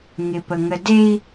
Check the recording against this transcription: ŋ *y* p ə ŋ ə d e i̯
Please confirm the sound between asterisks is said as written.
no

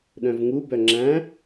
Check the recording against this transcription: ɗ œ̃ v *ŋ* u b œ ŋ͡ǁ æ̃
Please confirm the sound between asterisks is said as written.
yes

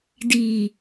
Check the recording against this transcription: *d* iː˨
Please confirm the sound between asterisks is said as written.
yes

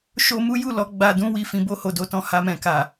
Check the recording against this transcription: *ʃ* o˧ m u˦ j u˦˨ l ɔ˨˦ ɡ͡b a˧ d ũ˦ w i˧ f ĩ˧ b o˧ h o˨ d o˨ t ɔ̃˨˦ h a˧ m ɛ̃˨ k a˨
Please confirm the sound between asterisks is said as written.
yes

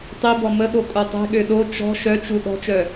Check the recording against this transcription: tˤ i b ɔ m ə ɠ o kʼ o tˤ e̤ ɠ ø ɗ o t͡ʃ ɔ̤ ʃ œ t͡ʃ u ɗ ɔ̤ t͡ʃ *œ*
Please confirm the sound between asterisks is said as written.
yes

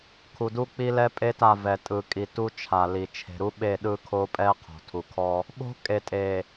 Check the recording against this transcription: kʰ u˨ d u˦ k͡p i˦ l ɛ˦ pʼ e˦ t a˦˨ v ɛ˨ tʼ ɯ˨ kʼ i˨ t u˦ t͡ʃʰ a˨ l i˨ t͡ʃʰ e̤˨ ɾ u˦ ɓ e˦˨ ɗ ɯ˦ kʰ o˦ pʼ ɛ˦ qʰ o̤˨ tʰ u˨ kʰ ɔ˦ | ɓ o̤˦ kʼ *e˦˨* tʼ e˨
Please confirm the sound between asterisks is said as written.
no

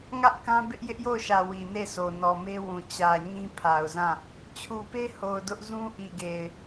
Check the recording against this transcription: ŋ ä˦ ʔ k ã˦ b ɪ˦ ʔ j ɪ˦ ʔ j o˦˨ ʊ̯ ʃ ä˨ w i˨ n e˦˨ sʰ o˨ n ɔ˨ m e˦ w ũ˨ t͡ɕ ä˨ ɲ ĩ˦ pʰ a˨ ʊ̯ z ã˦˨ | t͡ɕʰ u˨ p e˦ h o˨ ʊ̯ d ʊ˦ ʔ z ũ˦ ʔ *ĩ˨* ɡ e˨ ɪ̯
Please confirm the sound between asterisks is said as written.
no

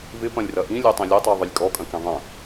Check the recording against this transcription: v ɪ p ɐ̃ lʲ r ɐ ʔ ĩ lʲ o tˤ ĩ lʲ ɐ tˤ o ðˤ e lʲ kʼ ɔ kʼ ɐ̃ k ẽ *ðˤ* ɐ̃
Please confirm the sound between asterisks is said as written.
yes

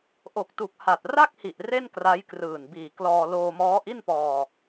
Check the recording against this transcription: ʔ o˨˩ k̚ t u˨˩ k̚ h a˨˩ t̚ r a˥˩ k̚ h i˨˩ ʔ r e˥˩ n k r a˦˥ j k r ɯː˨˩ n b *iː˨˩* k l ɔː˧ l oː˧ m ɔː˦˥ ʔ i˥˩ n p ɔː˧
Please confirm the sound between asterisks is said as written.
yes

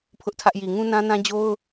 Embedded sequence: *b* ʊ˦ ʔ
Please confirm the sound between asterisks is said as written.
no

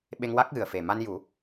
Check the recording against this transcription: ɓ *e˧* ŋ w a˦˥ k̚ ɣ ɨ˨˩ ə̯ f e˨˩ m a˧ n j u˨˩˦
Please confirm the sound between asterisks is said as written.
yes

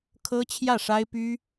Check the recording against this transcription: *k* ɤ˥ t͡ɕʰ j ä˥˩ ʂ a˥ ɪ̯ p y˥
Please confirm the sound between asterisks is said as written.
no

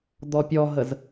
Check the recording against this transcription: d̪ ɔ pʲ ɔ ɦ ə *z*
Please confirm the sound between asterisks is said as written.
yes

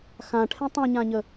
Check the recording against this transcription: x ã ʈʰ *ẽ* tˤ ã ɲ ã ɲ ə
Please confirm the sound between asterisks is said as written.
yes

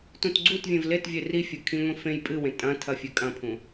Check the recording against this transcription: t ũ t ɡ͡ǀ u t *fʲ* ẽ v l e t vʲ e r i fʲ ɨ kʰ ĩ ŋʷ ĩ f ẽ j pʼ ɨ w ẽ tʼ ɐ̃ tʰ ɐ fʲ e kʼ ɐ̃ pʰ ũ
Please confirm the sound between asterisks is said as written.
no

